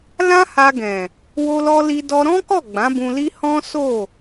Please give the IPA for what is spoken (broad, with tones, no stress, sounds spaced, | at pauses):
l ã˦ h a˧ ɡ ɛ̃˨ | w o˧ l ɔ˧ l i˧ d ɔ˧ ɾ ɔ̃˦ k ɔ˦˨ ɡ͡b ã˨˦ b ũ˧ l i˦ h ɔ̃˦ s o˦˨